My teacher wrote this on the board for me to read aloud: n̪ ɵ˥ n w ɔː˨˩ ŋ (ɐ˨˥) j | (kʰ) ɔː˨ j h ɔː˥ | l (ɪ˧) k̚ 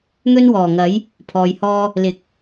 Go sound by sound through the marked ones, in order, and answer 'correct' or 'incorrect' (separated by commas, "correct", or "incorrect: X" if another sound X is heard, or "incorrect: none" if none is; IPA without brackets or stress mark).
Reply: correct, incorrect: pʰ, incorrect: ɪ˨˥